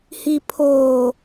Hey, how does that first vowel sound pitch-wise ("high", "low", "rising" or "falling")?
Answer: low